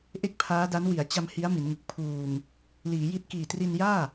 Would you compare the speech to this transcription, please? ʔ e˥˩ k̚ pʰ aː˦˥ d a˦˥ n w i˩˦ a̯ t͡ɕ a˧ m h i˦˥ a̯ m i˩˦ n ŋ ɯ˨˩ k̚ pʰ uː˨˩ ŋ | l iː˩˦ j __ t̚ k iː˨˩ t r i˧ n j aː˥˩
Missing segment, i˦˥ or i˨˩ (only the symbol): i˦˥